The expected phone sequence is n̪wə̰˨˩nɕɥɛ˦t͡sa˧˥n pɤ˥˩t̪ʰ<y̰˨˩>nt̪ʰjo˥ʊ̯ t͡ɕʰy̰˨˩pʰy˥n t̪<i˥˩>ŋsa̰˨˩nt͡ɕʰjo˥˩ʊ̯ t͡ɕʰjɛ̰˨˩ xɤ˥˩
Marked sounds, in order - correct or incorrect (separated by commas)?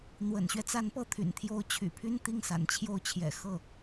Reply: correct, correct